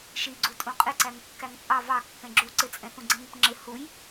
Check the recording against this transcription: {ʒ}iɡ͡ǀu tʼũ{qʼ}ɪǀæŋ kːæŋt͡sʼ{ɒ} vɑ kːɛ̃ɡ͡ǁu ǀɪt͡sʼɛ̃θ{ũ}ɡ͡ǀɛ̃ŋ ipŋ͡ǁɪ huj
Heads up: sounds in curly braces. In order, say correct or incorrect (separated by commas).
incorrect, correct, incorrect, correct